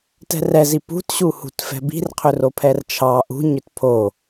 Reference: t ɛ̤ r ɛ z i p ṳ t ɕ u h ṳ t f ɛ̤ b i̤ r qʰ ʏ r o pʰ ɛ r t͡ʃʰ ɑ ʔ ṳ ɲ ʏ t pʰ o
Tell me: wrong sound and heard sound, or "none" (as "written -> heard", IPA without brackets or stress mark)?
none